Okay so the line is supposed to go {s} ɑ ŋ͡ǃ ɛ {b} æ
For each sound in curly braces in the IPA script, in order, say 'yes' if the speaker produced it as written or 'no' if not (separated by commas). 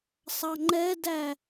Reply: no, no